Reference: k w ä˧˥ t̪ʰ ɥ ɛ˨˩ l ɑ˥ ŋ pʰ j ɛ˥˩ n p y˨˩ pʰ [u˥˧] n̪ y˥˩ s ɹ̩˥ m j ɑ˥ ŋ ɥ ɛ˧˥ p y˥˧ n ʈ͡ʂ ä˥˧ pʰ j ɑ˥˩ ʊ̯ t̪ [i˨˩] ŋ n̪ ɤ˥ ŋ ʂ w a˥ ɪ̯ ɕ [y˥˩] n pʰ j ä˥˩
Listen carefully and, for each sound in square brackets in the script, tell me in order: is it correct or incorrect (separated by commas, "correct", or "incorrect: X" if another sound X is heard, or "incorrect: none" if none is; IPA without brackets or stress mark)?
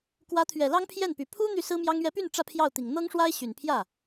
incorrect: u˥, correct, incorrect: y˨˩